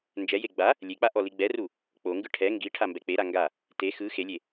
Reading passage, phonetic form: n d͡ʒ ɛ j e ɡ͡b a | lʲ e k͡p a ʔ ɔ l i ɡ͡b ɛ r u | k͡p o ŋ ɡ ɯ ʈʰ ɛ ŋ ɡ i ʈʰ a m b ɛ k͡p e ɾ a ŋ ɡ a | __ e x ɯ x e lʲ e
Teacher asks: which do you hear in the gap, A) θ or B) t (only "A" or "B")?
B